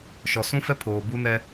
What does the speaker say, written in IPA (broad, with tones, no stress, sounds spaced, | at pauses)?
ʃ ɔ˨ s ũ˦ f ɛ˦ pʰ oː˨ b u˦ n ɛ˦